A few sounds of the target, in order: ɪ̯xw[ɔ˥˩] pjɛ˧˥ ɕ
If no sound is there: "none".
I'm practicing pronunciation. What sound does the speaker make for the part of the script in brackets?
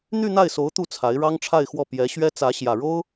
ɔ˥˩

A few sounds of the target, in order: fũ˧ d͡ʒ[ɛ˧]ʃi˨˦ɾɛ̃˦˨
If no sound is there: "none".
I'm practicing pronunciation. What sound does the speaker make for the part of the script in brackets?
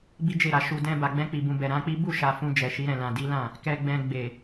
ɛ˨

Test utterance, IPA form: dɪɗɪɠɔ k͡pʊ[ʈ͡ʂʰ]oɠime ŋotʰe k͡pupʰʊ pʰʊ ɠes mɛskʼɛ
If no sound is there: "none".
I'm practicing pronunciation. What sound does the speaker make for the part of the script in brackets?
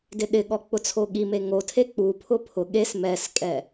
t͡sʰ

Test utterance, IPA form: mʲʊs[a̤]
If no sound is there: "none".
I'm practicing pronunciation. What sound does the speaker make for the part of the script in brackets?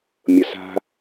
a̤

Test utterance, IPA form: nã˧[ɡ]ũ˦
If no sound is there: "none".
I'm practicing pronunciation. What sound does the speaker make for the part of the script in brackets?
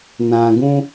ɡ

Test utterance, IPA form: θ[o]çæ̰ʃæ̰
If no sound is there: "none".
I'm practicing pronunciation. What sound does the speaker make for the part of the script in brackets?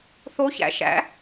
o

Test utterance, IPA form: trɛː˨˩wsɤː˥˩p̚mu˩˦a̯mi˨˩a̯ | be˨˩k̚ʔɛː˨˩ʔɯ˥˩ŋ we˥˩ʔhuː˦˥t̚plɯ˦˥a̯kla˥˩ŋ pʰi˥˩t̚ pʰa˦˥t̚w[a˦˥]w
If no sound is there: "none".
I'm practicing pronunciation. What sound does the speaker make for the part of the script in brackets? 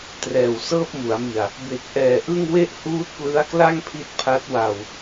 a˧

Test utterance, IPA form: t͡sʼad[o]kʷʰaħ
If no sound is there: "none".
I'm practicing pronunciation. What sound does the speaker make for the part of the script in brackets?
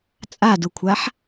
u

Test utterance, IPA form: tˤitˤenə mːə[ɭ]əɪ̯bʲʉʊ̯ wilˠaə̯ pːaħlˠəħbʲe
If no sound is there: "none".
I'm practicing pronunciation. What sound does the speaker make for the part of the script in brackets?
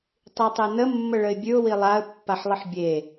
ɭ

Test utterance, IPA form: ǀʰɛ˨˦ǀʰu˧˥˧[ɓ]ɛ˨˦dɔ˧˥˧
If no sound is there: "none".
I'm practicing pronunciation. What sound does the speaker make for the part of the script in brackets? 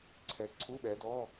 ɓ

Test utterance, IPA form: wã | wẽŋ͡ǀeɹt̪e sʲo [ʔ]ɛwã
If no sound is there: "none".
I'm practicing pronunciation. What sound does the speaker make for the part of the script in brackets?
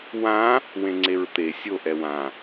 ʔ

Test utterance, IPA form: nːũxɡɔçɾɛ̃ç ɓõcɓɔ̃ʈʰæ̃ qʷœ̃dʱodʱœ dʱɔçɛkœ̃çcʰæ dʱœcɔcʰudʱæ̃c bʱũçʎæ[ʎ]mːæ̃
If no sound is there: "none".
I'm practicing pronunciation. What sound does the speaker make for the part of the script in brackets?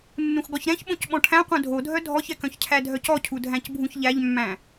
ʎ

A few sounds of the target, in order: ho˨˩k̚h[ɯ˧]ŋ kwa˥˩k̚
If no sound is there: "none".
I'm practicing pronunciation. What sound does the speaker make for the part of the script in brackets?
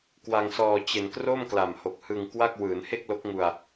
ɯ˧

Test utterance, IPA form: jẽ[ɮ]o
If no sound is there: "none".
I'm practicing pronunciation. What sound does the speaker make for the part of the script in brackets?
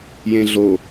ɮ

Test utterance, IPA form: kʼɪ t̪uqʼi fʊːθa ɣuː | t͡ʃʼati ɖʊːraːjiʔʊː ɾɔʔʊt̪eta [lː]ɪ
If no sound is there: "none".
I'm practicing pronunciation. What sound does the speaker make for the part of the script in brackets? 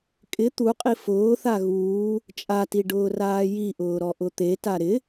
ɾ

